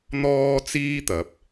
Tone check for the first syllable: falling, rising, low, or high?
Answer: high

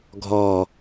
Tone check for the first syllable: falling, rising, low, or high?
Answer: falling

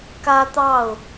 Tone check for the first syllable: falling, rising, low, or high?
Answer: high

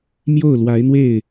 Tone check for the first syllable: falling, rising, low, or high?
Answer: falling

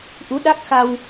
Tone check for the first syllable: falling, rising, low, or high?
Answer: rising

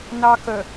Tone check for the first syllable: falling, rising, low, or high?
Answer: high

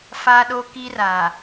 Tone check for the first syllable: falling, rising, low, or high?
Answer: high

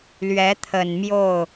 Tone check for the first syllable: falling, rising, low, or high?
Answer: rising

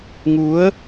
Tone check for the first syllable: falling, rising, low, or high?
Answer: rising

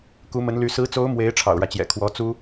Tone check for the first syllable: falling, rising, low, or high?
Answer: rising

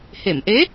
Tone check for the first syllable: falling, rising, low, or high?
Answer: low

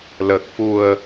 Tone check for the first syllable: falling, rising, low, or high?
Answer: low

